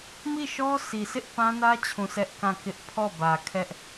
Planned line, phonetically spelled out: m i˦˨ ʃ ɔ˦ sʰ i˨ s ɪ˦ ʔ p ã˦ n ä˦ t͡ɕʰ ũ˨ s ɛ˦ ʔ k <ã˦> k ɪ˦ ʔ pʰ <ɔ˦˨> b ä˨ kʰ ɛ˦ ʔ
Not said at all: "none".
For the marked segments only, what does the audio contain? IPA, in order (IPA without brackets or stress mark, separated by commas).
ã˦˨, ɔ˦˨